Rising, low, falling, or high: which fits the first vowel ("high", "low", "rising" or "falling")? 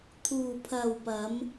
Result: low